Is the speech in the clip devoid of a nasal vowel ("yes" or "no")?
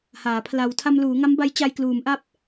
yes